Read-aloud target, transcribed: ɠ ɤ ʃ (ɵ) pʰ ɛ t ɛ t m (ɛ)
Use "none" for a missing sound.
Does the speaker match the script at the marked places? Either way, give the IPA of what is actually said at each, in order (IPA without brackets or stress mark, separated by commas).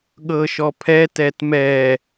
ɔ, ɛ